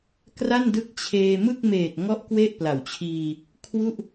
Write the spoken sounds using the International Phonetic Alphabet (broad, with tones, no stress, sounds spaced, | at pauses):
k r a˥˩ n d ɯ˦˥ k̚ t͡ɕʰ eː˧ m ɯ˥˩ k̚ m eː˨˩ t̚ ŋ ɔ˦˥ ʔ k w e˥˩ ʔ p l a˨˩ w t͡ɕʰ iː˧ | kʰ w u˥˩ ʔ